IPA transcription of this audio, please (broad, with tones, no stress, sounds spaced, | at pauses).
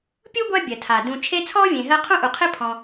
pʲ u˥ ɡʷ a˦ bʲ ɜ˩ tʰ a˩ d ũ˨ t͡ʃʰ e˦ t͡sʰ ɔ˥ vʲ ẽ˨ ɦ ɜ˦ qʰ ũ˥ ʔ u˨ qʰ ɪ˥ pʰ ɔ̃˨